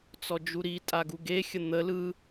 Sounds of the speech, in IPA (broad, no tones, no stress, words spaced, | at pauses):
t͡sɔd͡ʒuɾi tʼaɡuɡe xʲən̪ə lɯ